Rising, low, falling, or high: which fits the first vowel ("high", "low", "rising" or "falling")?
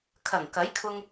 low